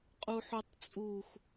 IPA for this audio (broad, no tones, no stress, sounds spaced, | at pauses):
qʼ u ħ u tˤ t͡sʼ u xʷ